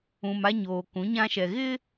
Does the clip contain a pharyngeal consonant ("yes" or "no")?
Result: no